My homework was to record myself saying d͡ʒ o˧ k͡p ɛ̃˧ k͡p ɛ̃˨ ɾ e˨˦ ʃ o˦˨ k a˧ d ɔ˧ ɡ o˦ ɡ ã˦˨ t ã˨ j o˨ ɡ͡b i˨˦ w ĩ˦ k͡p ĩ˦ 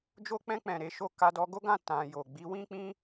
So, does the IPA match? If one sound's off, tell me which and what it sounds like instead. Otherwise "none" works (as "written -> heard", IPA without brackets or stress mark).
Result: none